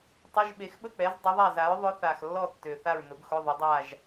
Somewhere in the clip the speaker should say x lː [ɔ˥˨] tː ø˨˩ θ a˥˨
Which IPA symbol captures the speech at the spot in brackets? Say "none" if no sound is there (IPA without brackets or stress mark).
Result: ɔ˥˨